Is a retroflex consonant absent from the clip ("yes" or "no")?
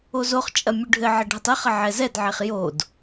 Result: no